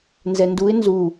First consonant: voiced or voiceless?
voiced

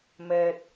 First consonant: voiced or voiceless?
voiced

